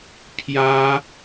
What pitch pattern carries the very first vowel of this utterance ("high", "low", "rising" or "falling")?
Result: high